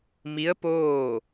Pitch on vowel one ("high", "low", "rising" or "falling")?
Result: rising